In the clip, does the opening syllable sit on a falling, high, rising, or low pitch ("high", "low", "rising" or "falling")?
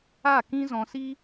falling